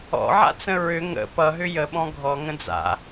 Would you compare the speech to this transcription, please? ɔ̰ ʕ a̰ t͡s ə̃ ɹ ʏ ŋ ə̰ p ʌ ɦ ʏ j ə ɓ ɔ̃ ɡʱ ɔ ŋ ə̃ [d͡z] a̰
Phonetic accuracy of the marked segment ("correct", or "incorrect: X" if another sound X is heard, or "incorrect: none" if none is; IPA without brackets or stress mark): correct